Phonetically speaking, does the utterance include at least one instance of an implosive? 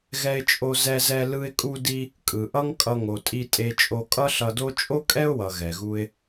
no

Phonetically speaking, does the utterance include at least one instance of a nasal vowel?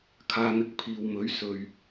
no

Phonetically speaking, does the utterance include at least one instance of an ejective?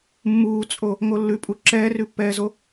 yes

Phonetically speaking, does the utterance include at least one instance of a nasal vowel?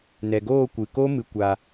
no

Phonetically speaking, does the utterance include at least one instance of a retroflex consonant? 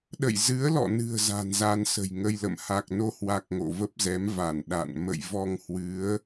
no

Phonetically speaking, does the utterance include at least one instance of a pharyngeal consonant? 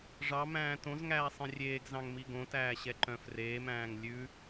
no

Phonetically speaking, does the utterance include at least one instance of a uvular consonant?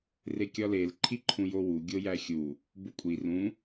no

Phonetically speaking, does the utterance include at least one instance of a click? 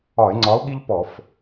yes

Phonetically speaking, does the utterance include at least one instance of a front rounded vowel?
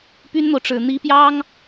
yes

